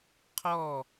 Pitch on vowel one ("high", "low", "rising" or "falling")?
falling